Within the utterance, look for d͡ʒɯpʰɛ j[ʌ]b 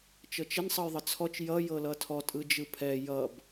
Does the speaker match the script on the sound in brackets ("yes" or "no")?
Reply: yes